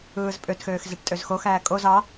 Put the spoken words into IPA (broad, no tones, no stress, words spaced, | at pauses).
ɯːzpʼøtxøːx zeʈtʼøzxoxæː kʼoz ɑ